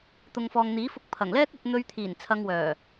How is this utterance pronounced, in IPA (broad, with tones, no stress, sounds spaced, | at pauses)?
t̪ ʊ˨ ŋ f ɔː˨ ŋ n̪ iː˨˥ f ʊ˧ k̚ pʰ ɐ˨˩ ŋ l ɛː˥ k̚ ɵ˧ t̚ n̪ ɵ˧ ɥ t̪ʰ iː˨˩ n t͡sʰ ɐ˧ ŋ w œː˨˩